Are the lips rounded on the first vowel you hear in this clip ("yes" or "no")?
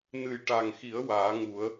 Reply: no